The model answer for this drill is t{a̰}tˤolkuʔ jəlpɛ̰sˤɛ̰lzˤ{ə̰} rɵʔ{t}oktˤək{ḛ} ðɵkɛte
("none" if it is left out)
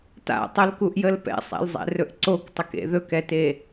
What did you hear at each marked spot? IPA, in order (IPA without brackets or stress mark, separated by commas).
a̰, ɛ̰, ǀ, ḛ